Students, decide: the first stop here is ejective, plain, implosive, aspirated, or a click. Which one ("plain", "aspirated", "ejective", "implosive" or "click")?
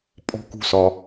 ejective